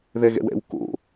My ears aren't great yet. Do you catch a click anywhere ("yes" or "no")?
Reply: no